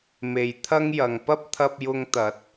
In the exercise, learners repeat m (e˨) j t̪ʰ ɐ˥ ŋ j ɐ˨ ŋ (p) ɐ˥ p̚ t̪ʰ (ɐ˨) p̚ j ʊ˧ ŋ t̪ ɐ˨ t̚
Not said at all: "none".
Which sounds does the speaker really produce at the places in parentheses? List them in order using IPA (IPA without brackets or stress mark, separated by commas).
e˨, p, ɐ˧